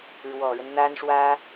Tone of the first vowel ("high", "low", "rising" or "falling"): low